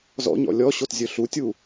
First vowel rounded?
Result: yes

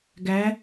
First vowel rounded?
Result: no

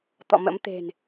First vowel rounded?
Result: yes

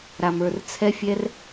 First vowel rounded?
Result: no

